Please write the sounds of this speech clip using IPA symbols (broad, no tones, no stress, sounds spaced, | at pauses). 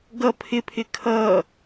ɡ ʌ pʰ ɪ pʰ ɪ kʰ ʌ